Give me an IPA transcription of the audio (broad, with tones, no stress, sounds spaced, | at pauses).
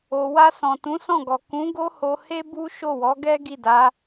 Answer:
o˨ w a˧ s ɔ̃˨ t ũ˨˦ s ɔ̃˦˨ ɡ ɔ˨ k ũ˨˦ ɡ o˦ h o˧ h e˦ b u˦ ʃ o˦˨ w ɔ˨˦ ɡ ɛ˦ ɡ i˦˨ d a˨˦